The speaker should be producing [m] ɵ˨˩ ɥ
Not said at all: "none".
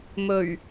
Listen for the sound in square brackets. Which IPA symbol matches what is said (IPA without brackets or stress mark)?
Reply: m